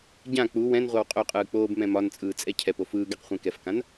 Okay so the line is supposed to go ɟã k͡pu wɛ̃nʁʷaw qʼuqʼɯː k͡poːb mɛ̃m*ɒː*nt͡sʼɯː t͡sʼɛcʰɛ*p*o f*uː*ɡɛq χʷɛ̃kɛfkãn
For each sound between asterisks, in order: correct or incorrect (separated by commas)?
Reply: incorrect, correct, incorrect